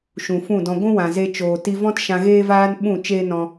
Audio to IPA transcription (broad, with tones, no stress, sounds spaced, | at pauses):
ʃ ũ˨ f ũ˦˨ d ɔ̃˧ ɡʷ ũ˦ w ã˨ z e˧ t͡ʃ oː˨ t i˧ v ɔ̃˦ t ʃ ã˧ ɣ eː˦ v aː˦ n ɓ ũ˦˨ t͡ʃ eː˦ n ɔ̃˧